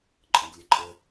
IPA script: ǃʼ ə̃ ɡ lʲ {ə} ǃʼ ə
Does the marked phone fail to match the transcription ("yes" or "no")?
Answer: no